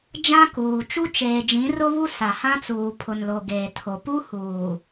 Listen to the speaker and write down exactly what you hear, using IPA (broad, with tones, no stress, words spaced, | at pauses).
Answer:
d͡ʒã˦kuː˨ t͡ʃu˦t͡ʃeː˨ d͡ʒĩ˨˦rʊ˦βu˦ sa˨hã˦t͡suː˨ pʰʊ˨nlo˨ ɡeː˨tʰo˨ pu˦huː˨